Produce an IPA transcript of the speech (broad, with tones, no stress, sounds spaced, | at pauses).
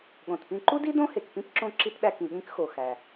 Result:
ɠ õ˩ t p ĩ˧ ǃ u˥ d i˥ d õ˥ h e˩ k p ĩ˥ p ǁ õ˧ ǁ i˧ t ɗ æ˧ k ĩ˩ ɠ ĩ˧ k x o˩ x æ˩